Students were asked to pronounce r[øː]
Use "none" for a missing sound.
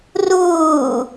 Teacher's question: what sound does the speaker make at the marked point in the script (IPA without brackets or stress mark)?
uː